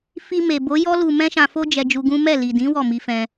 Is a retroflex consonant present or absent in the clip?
absent